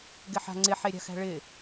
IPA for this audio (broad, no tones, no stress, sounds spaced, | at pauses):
ɡ ɪ ħ a̤ ŋ͡ǀ ɪ ħ e ɾʲ a̤ x æ̤ ɭ ɪ